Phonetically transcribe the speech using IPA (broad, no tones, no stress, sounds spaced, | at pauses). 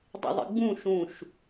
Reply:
dˤ ḛ ðˤ ḭ ɡ͡b ũ ʃ ũ ʃ